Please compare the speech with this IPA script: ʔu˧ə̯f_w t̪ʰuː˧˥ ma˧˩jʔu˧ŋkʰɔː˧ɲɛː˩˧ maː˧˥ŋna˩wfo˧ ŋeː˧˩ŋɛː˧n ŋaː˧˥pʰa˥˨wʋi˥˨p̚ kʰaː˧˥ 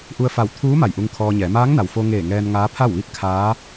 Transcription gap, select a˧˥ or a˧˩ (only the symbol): a˧˩